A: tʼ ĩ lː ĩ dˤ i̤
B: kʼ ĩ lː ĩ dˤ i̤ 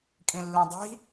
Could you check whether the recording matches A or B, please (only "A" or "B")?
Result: B